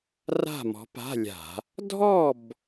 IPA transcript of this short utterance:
ra̤˥˨mɔ̤˨˥pa̤˧˥˧lʲa̤˧˩˧ | dʱɔ˥˨b

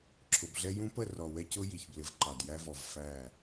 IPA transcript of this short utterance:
ǁʰʊ˨bɮɛ˦ jũ˦pə˦˨ rɔ˨wɛ˦cʊ˦ji˨ç blɪ˨vǃɑ˨d jæ˦vɔ˨v fæ˦˨

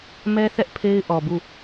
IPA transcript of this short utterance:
mɛ˦θɛ˦ʔ pʰe˦ɪ̯ʔɔ˨bu˦˨

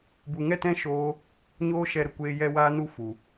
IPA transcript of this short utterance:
bu˨ŋɛ˦˨tɛ̃˦ ʃoː˦ | ɲoː˦ʃɛ˧ ɾə˨kʷeː˧jɛ˧ waː˦nu˦ fu˨

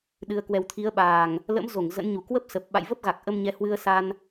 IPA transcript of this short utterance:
ɗɨ˧ə̯ kwɛ˨˩wt̪ʰi˨˦ə̯ɓaː˨˩ŋ | lə̰˧˥m zo˧˩ŋ zə̰˧˥nɲu˨˩ kwə˦˥p̚sə˨˩p̚ ɓa̰˧˨jvə˦˥p̚ ɣa˨˩k̚ʔə˧mɲɛ˨˦ hwɨ˧ə̯sa˧n

